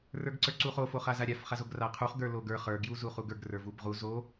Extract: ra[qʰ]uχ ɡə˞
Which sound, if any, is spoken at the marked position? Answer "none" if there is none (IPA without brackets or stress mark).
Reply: qʰ